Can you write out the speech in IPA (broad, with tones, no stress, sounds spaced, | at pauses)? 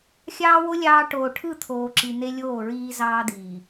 xʲ ɑː˦ w o˦ lʲ ɑː˦ ʈ oː˨ ʈʰ ɯ˦˨ t̪ʰ oː˨ ǁ i˨ n̪ e˦ lʲ oː˦˨ ɹ iː˦ z ɑː˦ d̪ iː˨